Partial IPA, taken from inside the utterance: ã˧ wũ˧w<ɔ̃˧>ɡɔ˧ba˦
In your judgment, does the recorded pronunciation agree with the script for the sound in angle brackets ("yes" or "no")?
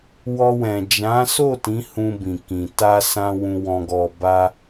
yes